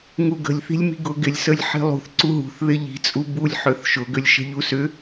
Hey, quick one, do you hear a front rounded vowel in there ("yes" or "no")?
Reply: yes